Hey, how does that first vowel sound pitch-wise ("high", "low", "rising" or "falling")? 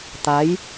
rising